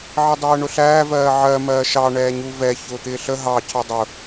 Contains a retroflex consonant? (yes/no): yes